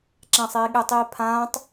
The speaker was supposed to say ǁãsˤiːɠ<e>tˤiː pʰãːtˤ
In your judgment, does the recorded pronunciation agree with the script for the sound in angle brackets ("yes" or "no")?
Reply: yes